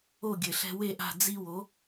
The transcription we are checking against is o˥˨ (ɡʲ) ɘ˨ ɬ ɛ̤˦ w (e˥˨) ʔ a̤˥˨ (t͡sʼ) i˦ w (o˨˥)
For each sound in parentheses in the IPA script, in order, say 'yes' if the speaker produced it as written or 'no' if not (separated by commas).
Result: yes, yes, no, yes